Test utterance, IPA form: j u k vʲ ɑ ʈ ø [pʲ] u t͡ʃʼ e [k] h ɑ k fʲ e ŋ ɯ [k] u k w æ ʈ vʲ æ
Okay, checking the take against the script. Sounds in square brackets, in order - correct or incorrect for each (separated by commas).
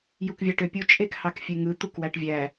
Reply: correct, correct, incorrect